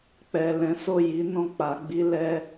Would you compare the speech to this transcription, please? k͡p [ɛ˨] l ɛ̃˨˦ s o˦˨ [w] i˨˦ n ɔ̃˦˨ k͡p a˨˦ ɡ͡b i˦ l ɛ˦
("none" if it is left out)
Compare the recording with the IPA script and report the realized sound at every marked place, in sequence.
ɛ˨, j

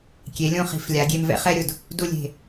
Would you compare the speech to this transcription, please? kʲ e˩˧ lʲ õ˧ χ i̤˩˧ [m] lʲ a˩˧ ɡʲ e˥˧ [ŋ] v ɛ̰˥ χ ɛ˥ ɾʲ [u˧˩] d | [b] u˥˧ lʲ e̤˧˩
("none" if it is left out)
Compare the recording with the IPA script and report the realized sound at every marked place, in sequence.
f, m, ʊ˧˩, d

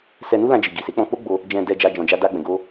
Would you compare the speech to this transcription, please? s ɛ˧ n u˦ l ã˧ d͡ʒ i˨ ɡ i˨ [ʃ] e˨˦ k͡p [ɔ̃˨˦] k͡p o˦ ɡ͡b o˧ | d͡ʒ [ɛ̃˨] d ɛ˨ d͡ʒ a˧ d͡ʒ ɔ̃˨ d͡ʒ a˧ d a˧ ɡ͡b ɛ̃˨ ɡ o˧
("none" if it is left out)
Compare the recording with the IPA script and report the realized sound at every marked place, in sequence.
s, ɔ̃˧, ɛ̃˨

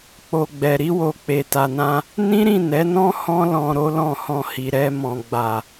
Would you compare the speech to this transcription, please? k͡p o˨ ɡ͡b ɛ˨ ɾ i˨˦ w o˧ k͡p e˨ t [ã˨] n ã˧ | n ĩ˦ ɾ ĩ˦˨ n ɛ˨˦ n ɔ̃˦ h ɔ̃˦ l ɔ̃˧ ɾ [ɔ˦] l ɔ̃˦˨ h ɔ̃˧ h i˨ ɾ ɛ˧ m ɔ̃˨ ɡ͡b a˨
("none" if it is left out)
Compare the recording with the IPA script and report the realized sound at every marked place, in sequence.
a˨, o˦

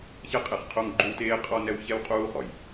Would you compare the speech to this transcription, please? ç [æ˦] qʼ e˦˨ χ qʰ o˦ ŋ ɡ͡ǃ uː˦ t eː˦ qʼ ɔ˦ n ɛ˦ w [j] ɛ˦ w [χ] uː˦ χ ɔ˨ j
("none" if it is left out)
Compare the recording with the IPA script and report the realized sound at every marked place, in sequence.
ɛ˦, ç, qʼ

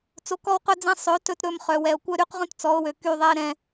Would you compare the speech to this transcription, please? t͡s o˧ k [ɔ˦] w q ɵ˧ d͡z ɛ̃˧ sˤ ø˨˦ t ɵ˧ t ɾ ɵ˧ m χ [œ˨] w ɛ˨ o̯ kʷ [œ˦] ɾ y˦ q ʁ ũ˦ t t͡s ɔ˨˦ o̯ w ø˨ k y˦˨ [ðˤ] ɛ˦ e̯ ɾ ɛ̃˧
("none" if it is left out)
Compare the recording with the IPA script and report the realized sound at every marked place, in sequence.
ɔ˦, œ˨, œ˦, ðˤ

